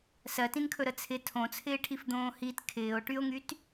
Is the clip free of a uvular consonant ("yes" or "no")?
yes